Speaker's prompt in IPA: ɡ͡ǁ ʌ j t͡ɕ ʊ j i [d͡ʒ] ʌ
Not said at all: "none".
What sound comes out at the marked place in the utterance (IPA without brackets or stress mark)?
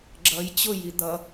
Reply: d̪